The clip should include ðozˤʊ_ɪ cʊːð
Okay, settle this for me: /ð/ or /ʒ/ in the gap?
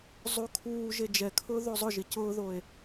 ʒ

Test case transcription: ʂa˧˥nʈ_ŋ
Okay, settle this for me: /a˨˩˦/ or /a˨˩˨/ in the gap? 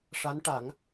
a˨˩˦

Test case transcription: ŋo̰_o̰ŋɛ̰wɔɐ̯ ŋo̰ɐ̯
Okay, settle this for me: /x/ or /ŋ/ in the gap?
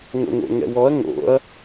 ŋ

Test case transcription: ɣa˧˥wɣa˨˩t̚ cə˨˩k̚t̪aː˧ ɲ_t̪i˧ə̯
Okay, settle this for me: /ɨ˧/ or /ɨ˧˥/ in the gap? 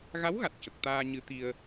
ɨ˧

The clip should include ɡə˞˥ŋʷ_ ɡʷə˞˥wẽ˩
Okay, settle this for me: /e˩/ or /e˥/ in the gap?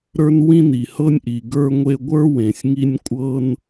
e˥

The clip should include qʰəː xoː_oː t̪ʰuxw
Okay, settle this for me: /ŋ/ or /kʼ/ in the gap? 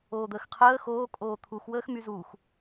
kʼ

